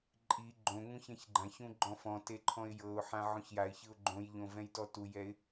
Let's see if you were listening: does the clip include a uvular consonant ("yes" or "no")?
no